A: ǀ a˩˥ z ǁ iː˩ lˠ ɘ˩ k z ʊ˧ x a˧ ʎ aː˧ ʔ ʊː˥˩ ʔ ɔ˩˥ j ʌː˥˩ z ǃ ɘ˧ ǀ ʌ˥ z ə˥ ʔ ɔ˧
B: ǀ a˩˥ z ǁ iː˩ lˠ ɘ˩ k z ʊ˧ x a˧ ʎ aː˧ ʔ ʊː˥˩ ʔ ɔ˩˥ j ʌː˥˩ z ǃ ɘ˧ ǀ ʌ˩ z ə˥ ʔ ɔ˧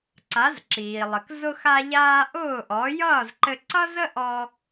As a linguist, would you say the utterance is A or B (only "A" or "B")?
A